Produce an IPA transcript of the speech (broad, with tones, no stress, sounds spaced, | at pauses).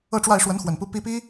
ɤ˥˧ ʈ͡ʂ w a˥˩ ɪ̯ ʂ w ə˧˥ n x w ə˨˩ n p u˧˥ p i˧˥ p i˥